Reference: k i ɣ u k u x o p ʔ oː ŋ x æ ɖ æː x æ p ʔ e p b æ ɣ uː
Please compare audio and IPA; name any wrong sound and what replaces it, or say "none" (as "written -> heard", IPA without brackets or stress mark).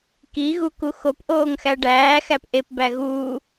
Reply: none